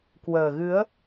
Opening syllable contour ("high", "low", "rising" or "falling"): low